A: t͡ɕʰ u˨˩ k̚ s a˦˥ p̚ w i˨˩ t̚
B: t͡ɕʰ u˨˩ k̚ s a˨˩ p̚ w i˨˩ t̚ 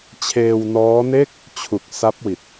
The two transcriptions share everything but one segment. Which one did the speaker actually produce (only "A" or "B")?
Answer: A